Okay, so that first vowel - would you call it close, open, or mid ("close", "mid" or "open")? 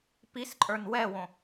close